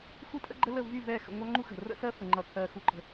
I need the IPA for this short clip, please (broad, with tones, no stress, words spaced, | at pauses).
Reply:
xʷi˦tʼə̰˦ɡ͡ǃə˦ lə˦˨ vy˦˨vɛ˦˨ xə̰˨ŋʷɑ˦ŋ͡ǃu˦ xə̤˨rə̰˦sɜ˦ fə˨ŋ͡ǃʌ˨kʰɜ˨ xu˦ǃə̤˦